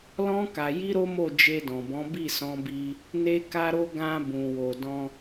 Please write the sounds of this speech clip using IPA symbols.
l ɔ̃˦ k a˧ j i˦ ɾ o˦ m o˦˨ d͡ʒ e˧ d ɔ̃˨ b ɔ̃˨˦ b i˦˨ s ɔ̃˧ b i˧ | n e˦ k a˦ ɾ o˦ ɡ ã˧ b ũ˨ w o˨ d ɔ̃˧

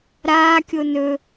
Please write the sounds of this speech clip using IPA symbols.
ɾ aː kʲ o n ɵ

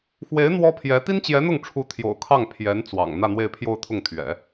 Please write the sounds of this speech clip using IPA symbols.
x w e˧˥ ɪ̯ n̪ w ɔ˥ pʰ j ɛ˧˥ t̪ i˥ n t͡ɕ j ɛ˧˥ n̪ ʊ˥˩ ŋ ʈ͡ʂʰ u˧˥ t̪ʰ j o̰˨˩ ʊ̯ kʰ ɑ˥˩ ŋ pʰ j ɛ˧˥ n t͡s w ɑ̰˨˩ ŋ n̪ ä˥˧ n̪ w e˥˧ ɪ̯ pʰ j o˥˧ ʊ̯ t̪ʰ ʊ˥˩ ŋ t̪ʰ ɥ ɛ̰˨˩˦

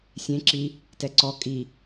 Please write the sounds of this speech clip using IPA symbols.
sʲ ẽ ǁ i | t ɛ ǀ ɔ kʼ i

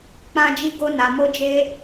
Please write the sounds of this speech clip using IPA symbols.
k͡p ã˧ d͡ʒ i˧ ɡ o˧ n a˨ m o˧ d͡ʒ e˧

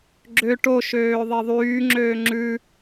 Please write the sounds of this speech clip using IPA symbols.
ɡ͡ǁ ø ʈ o ʃ øː ðˤ e ðˤ yː ŋ͡ǁ øː ŋ͡ǁ ʉ

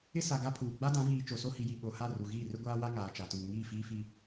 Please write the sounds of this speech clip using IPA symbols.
ɪ˦ s a˨ ɡ a˦ pʰ uː˨ ɡ͡b a˦ d ã˨˦ v iː˨ t͡ʃ o˨ s o˦ h i˨ j i˨ ɓ o˨ h a˦˨ r u˨ ɣ iː˦˨ r ɪ˦ ɡʷ aː˦ w a˦ ŋ aː˨ t͡ʃ a˨ t uː˨ ŋ iː˦˨ f iː˦ f i˦

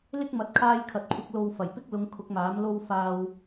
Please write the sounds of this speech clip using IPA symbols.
l ɪ˥ k̚ m ɐ˨˥ t̚ kʰ aː˧ j kʰ ɐ˨ t̚ kʷʰ ɐ˧ k̚ l o˧ w f ɐ˨˩ j p ɪ˥ k̚ l ʊ˨˧ ŋ kʰ ʊ˨˥ k̚ m aː˨˥ m l o˥ w f aː˧ w

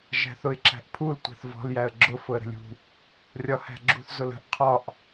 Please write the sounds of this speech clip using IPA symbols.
ʒ æ̤ θ ʊ ɪ̯ ǁ æ̤ ʔ pʰ u l tʷ æ̤ θ v ɔ̤ l j æ ə̯ ɡ͡ǁ ʊ f ʊ ə̯ ɾ ə̤ lʲ ṳ | rʲ ɒ h æ̤ ɡ͡ǁ ṳ θ z ʊ l ə̤ ʔ qʰ ɒ ʔ

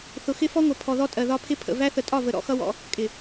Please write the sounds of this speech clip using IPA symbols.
θ ʊ˨ x ɪ˦ f ɔ˦ ŋʷ ʌ˨ pʰ ɔ˨ ð ɔ˦ tʼ ɜ˨ ð ɒ˦ pʰ ɪ˦ pʰ ə̰˨ v æ˦ θ ə˨ tʼ ɒ˦˨ v ə˨ ɾ ɔ̰˦ x ʌ˦ w ɔ̰˦ | kʼ ɪ˨

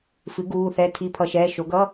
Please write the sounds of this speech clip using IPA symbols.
f ɨ˩˥ ɡ uː˧˥˧ θ ɛ˧˥˧ tʰ i˧˥˧ pʰ ʌ˧˥˧ ʃ ɛː˧˥˧ ʃ o˩˥ ɡ ʌ˧˥˧

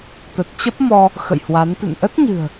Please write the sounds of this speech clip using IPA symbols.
t̪ ə˨˩ t̚ t͡ɕ ə˦˥ p̚ m ɔ˧ | x ə̰˧˨ j h w a˨˦ n t̪ ɨ̰˧˨ n ʔ ə˦˥ t̚ ɲ ɨ̤˨˩ ə̯

